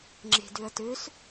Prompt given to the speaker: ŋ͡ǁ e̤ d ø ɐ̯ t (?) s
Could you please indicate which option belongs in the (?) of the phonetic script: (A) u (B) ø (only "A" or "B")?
B